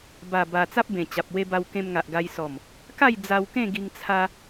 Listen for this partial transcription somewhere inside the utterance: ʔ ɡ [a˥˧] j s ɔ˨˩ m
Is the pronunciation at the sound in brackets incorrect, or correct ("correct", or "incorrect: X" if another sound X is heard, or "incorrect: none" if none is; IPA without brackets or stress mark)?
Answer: incorrect: a˧